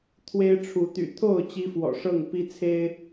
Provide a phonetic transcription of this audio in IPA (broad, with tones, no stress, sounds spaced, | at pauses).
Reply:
t̪ʰ w e˦ ɪ̯ ʈ͡ʂʰ u˨˦ t̪ y̰˨˩ t̪ʰ o˥˨ ʊ̯ t͡ɕ i˦ f w ɔ̰˨˩ ʂ ɤ˥˨ ŋ p i˦ t͡sʰ e˦ ɪ̯